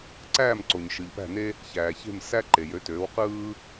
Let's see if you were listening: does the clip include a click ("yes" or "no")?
yes